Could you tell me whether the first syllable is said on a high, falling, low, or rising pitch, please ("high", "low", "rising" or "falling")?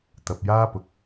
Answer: low